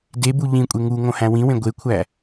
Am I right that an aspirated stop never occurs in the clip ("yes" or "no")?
no